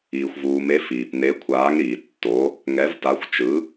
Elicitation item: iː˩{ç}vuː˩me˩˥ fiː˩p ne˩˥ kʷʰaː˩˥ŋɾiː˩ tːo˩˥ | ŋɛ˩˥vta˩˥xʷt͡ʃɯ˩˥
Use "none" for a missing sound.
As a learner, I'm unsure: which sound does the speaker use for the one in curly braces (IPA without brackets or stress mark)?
xʷ